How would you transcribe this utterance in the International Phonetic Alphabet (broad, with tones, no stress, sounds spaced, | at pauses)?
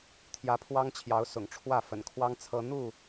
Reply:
t̪ʰ j ä˨˦ pʰ w ɑ˦ ŋ t͡ɕʰ j ɑ˨˦ ʊ̯ s ʊ̰˨˩ ŋ ʈ͡ʂʰ w ä˥˨ f ə̰˨˩ n kʰ w ɑ˦ ŋ t͡sʰ ɤ˦ n̪ u˥˨